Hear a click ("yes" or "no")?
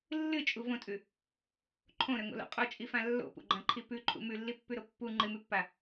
yes